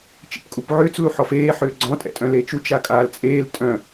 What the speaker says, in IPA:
t͡ʃ ḭ p kʼ u p ʕ ʏː t͡s l u ħ ɔ f eː ħ ʏː ɡ͡ǀ ɔ̃ tʼ ɛ̰ tʼ œ̃ l eː t͡ʃ u t͡ʃ a kʼ aː l t͡sʼ eː l tʼ œ̃

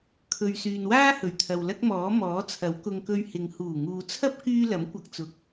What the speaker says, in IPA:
kʰ ɵ˨ ɥ s yː˨ n w aː˥ h ɵ˨˩ ɥ t̪ʰ ɐ˨ w l ɐ˥ k̚ m ɔː˨˥ m ɔː˨˥ t͡sʰ ɐ˨˥ w k ʊ˧ ŋ k ɵ˧ ɥ h ɪ˨ ŋ h uː˨˩ ŋ uː˨ t͡sʰ ɐ˥ p̚ k yː˥ l ɐ˨˥ m kʷ ɐ˧ k̚ t͡s ʊ˨ k̚

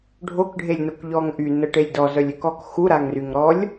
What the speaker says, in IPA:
ɖʱ o k ɖʱ e lʲ n o k ʎ ɔ ŋ ʔ y n ə ʈ e lʲ d ɔ z œ lʲ ø k ɔ k x u ɾ a ŋ r y ŋ ɾ ɔ lʲ

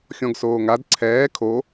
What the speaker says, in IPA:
xʲ ɔ̃ ɡ s oː ŋ a d ǀʰ ɛː kʰ o

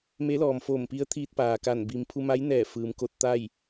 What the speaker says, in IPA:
m e˧˥ l ɔː˩ m f oː˧˩ m p i˧˥ ə̯ t̪ʰ iː˧ t̚ p aː˩ k a˧˩ n b i˩ m pʰ u˧ m a˧˥ j n ɛː˧˩ f ɯː˩ m k o˧ t̚ t̪ a˥˨ j

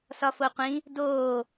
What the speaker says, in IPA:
s ɒ f o qʷ ĩ | d oː

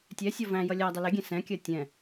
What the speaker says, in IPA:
tʲ ɛ sʲ ɔ v æ̃ j ʌ lʲ æ dˤ ɪ l ɪ ɡʲ ɛ̃ s ɛ̃ kʲ ɜ tʲ ɛ̃

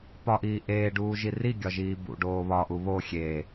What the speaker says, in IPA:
p ɒ ʔ iː ʔ eː ɖ uː ʒ i r i ɡʲ ɒ ʒ iː b ṵ ɖ oː β ɒ ʔ u β o xʲ eː

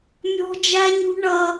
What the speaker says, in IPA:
mʲ ɔ̤˦ d͡ʒ æ˦ ɲ ṳ˦ ɳ ʌ˦

